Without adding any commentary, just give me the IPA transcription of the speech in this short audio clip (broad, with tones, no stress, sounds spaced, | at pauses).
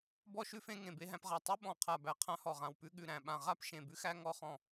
b ɔ˥ ʃ ʉ˥ f ẽ˥ ŋ ẽ˧˩ b e˥ ɦ æ̃˥ p ʁ a˧˩ tˤ ʉ˥ ɓ ɔ̃˧˩ qʰ a˧˩ b æ˧˩ qʰ ã˥ h ɔ˧˩ ʁ ã˧˩ w p ʉ˥ ɠ ʉ˧˩ ɾ æ̃˧˩ ɓ ã˧˩ ʁ a˥ p ʃ ẽ˧˩ b ʉ˥ x æ˥ ŋ ɔ˥ χ ɔ̃˧˩